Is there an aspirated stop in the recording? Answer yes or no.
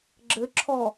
yes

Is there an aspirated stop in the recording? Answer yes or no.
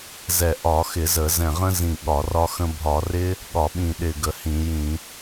no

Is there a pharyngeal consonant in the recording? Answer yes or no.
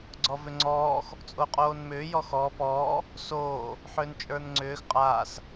yes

